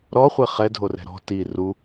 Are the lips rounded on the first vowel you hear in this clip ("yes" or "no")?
yes